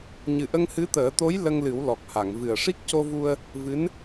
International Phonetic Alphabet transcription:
ɲ ɨ˨˩ ʔ ə˧ ŋ h ɨ˧˥ t̪ əː˨˩˦ t̪ o˧˥ j l ə˧ ŋ l ɨ˨˩˦ w l ɔ˨˩ k̚ h a˨˩˨ ŋ v ɨ˨˩ ə̯ ʂ i˦˥ k̚ c o˧ v u˧ ə̯ | v ɨ˧˥ n

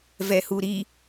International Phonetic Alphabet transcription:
v ɛ h u ɾ i

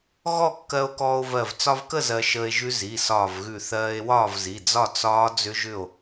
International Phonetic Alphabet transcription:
ɣ ɔ˥˨ kː ɜ˧ o̯ k ɔː˧ o̯ v ɜ˧˩ v t͡s ɒ˧ v k ə˥˨ z ɜ˧ ʃ əː˧ e̯ ʒ ʉ˦˥ z i˩˧˩ s ɒː˧˩ v ɣ ʉ˧˩ θ ɜː˧ e̯ w ɒː˥˨ v z i˩˧˩ d͡z ɒ˥˨ t͡s ɒː˦˥ d͡z ʏ˦˥ ʒ ʏ˥˨ o̯

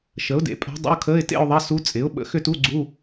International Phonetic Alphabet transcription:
ʃ ə˩˥ ʊ̯ d ḛ˩˥ pʼ a̤˧˥ dˤ ə̰˧˥˧ ʊ̯ kʰ əː˧˥˧ ɪ̯ t ḛ˥˧ ʊ̯ ðˤ ɐ˧˥˧ s u˧˥ t͡sʼ ɪ˩˥ ʊ̯ ɓ ə̰˩˥ x ʏ˥˧ t u˧˥˧ ɡ͡ǀ u˧˥˧

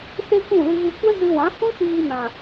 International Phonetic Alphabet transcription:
s e˦ kʷ ũ˦˨ l ɨ˧ ɣ ɨ˧ kʷ ɛ˦ z ɨ˧ w ã˨˦ h ũ˦ ʃ iː˧ n ã˨

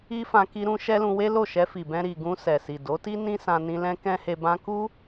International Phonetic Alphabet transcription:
i˦ f ã˧ k i˧ ɾ ũ˧ ʃ ɛ˦ l ũ˧ w e˦ l o˦˨ ʃ ɛ˧ f i˨ b ɛ̃˧ ɾ i˨ ɡ ũ˧ s ɛ˨ s i˨ d o˨˦ t i˦ n ĩ˦ s ã˧ n ĩ˧ l ɛ̃˦ k ɛ̃˦ h e˧ b ã˦ k u˦

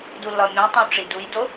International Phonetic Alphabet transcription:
d u lː ɒ mʲ ũ tˤ ẽ u̯ ʈ͡ʂ i d u j d o

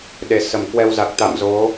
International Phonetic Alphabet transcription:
ɗ e˨˩ s ə˧˩ m k w ɛ˧ w z a˨˩ k̚ t̪ a̰˧˨ m z o˨˦

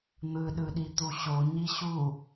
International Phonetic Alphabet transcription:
n̪ ɯ ɗ ɯ ɗ i t̪ u ɕ o ɲ i ɕ u

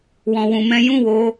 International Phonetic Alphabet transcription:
w ɔ̃˧ w ũ˧ m ɛ̃˦ j ũ˦˨ w o˧

